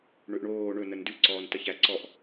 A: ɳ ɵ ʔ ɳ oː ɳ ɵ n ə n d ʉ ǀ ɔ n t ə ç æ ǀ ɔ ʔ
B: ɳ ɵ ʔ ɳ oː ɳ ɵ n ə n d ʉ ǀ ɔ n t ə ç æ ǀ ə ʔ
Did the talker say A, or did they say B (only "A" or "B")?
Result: A